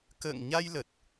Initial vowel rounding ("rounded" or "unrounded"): unrounded